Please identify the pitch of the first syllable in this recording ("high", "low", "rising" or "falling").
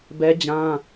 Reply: high